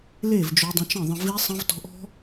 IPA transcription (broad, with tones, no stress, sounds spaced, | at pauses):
l e˦˨ v d͡ʒ o˧ dˤ ə̃˧ t͡ʃ ə̃˦˨ ðˤ ə̃˧ v i˧ sˤ ə̃˧ v t ɔ̤˧ ʔ ɔ̤˦